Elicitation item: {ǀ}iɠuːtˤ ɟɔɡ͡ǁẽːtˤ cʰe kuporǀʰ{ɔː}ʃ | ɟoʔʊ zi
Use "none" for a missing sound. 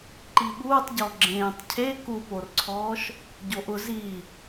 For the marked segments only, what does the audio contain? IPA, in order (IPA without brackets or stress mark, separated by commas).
ǃ, ɔː